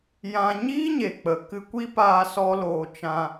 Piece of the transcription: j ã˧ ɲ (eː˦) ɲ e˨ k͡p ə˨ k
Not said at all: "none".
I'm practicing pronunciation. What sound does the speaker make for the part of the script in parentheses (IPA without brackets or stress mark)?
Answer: iː˦